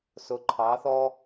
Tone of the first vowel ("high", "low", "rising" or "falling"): rising